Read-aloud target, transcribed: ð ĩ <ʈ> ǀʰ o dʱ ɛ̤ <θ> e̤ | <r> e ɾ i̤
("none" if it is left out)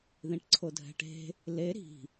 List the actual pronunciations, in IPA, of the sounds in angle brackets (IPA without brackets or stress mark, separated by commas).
ʈ, ʈ, l